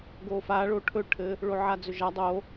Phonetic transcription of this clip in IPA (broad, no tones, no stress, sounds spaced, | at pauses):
ɡ o f a ɭ o ʈʰ ɵ ʈʰ ɘ | ɭ o ʕ a d͡z ɵ ʒ a dˤ o